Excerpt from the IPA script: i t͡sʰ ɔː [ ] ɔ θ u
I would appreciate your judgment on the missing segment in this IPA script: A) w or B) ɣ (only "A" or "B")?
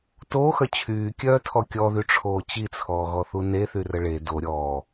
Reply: B